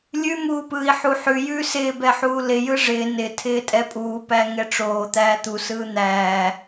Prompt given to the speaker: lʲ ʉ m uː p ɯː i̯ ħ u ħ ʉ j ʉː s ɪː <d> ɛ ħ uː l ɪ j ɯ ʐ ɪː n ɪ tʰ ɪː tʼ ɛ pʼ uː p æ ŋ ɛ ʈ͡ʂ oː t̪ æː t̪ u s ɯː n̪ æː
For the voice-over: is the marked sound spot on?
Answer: no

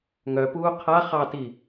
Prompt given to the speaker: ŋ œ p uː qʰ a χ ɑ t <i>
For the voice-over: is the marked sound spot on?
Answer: yes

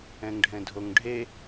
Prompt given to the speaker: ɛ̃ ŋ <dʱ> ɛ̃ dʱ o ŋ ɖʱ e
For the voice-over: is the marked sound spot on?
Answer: no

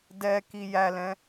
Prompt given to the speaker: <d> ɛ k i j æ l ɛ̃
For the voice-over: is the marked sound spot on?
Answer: yes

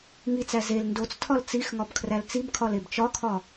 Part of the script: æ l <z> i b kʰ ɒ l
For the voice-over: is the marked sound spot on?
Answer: no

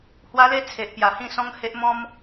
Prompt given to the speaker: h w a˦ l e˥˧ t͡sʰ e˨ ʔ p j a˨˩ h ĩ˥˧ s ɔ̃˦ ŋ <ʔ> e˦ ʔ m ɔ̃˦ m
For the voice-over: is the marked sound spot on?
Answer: no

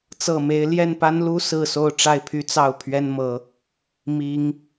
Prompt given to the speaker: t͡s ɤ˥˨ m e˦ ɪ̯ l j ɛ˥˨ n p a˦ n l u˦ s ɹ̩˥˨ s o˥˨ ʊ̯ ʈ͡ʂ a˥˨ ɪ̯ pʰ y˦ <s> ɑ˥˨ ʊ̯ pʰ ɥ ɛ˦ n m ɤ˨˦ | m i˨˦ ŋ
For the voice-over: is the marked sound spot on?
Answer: no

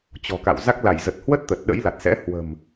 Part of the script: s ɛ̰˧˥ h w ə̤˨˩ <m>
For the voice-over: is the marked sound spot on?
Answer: yes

